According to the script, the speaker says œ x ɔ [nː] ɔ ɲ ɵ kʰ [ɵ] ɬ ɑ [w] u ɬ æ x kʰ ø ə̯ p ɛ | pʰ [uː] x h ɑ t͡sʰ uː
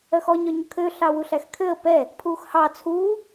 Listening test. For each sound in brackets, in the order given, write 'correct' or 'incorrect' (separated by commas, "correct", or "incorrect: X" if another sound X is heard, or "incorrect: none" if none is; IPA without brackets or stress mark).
incorrect: ɲ, incorrect: ø, correct, correct